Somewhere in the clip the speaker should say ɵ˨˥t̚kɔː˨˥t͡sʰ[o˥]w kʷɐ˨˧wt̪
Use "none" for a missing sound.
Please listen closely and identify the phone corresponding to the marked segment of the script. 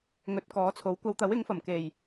o˨˥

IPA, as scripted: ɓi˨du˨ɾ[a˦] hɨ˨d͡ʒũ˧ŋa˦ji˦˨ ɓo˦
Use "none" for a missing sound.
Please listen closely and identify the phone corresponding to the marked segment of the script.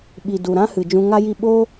ã˦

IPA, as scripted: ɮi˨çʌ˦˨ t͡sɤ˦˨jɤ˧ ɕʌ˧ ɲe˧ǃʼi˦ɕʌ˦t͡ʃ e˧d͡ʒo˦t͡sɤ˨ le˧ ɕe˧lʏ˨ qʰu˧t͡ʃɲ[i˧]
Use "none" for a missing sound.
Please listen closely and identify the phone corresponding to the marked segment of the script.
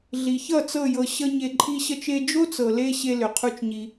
i˧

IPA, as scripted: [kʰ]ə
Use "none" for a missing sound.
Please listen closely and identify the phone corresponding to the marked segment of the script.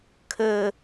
kʰ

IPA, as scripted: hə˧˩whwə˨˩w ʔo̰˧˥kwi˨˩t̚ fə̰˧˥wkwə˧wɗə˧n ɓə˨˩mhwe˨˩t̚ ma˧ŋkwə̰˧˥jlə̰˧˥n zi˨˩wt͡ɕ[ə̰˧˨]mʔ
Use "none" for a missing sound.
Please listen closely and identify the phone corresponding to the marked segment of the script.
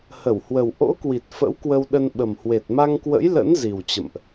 ə̰˧˨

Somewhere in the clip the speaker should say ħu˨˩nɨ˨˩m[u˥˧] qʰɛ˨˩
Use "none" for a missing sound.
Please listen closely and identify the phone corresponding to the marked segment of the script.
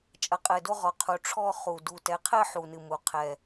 u˩˧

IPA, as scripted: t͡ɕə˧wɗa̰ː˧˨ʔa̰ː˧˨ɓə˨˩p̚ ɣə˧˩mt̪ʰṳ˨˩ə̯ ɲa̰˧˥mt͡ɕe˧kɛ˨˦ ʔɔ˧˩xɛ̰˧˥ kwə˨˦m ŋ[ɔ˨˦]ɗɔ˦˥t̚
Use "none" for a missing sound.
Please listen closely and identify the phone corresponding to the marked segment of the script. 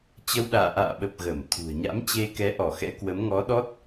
ɔ˨˦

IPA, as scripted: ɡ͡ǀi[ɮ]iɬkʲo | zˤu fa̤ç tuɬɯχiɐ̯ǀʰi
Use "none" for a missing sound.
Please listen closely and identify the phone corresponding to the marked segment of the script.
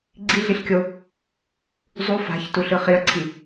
ɮ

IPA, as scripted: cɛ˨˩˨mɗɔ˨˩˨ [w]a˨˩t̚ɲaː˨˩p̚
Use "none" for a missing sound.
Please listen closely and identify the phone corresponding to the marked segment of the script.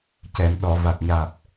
v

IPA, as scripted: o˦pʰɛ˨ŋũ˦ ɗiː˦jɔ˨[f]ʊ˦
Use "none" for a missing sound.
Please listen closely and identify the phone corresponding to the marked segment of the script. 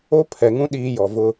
v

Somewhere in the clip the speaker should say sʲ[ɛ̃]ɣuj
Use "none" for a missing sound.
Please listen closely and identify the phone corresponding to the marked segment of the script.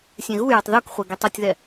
ɛ̃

